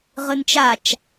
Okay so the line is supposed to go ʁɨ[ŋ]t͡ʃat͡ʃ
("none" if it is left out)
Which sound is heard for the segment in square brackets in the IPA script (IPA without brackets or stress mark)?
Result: n